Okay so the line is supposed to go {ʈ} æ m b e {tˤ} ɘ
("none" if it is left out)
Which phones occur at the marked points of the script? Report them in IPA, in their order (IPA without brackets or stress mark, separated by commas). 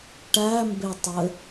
ʈ, tˤ